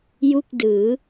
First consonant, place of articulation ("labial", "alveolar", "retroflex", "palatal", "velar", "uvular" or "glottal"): palatal